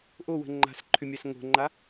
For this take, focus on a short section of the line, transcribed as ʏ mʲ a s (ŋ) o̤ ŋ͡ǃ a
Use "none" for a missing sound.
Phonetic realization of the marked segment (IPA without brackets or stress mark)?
ŋ